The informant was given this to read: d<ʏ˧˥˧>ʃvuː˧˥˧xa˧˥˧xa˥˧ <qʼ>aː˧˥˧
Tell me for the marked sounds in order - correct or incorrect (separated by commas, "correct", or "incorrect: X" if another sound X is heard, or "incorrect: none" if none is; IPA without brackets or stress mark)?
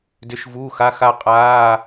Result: correct, correct